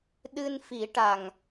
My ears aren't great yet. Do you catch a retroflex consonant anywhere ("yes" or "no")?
yes